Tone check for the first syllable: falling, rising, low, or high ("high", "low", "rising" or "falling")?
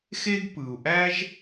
high